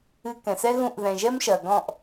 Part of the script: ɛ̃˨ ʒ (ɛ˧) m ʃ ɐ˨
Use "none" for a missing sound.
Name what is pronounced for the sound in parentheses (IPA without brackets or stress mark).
ɛ˦